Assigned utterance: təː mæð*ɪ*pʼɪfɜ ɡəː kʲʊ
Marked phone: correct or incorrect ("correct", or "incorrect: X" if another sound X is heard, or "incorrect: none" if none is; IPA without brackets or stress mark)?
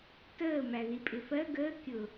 incorrect: i